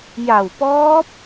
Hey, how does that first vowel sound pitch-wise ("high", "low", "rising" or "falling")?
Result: low